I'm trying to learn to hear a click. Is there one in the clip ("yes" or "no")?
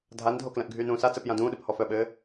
no